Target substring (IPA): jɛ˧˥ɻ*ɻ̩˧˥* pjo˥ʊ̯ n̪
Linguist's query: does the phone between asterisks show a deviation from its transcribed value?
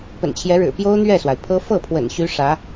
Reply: yes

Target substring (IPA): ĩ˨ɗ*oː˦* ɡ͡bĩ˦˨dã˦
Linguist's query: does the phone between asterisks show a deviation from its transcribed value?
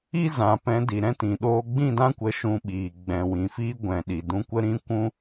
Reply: yes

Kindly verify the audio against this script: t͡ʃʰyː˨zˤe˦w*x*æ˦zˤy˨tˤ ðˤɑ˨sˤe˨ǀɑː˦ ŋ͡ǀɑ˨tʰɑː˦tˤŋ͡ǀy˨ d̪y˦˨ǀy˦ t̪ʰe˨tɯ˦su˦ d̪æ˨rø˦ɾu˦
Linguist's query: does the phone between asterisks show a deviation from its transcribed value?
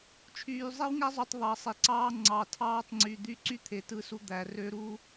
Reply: yes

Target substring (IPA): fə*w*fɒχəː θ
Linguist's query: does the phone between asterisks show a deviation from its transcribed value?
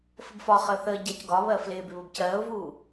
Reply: yes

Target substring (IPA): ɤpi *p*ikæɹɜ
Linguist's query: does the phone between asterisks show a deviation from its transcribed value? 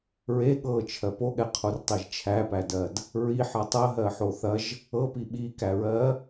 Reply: yes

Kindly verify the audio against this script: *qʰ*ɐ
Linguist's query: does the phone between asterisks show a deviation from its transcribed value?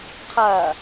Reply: no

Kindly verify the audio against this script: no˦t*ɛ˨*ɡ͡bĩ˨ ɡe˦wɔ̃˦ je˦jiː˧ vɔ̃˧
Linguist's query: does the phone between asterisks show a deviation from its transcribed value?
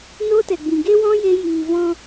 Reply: no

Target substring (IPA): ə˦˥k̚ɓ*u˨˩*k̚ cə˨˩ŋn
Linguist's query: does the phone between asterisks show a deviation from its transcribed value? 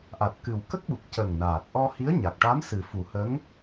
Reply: no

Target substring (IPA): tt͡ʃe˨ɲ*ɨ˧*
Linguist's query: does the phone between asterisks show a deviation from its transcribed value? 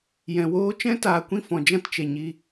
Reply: yes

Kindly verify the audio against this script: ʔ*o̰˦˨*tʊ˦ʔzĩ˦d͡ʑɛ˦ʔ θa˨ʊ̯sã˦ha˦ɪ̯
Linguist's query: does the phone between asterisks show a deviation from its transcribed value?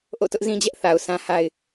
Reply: no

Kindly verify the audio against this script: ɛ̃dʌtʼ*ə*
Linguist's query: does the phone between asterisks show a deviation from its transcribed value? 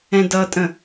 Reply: yes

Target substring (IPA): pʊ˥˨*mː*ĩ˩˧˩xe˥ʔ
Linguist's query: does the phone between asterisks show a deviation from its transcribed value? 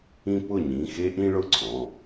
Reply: yes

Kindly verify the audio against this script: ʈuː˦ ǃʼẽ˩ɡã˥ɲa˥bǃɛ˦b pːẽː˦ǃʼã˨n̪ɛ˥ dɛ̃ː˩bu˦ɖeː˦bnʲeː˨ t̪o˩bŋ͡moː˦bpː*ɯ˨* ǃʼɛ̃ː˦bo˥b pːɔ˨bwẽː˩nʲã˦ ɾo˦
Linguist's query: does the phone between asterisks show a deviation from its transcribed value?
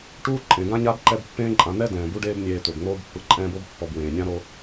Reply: no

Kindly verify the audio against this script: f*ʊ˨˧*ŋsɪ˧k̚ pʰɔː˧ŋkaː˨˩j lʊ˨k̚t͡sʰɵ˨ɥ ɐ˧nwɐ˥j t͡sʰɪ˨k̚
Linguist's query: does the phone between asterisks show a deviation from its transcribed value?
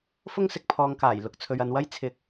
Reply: yes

